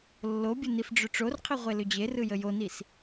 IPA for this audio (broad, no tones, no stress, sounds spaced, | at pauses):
lː o bʲ ə n i f ɖ͡ʐ ʏ ʈ͡ʂ o r qʰ i ʁʷ e l ʏ d͡ʑ e r ɯ j ə j o n i s